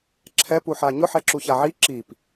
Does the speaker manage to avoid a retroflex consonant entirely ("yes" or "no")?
yes